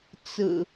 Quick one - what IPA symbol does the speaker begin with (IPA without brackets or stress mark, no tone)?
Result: t͡s